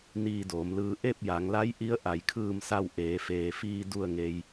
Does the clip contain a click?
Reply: no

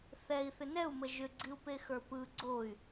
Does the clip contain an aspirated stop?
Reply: no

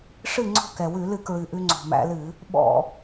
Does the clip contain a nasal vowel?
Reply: no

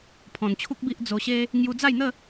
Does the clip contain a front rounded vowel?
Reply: no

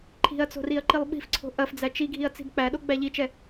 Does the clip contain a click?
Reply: yes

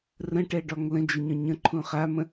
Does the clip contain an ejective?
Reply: no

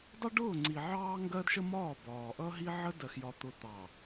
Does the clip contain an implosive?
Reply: no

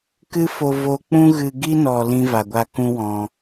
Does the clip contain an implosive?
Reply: no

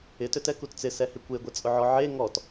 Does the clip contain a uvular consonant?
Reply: no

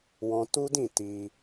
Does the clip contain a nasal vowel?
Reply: yes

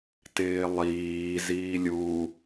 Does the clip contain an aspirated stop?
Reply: no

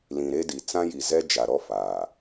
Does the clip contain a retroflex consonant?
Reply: no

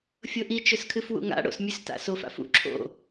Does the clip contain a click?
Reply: yes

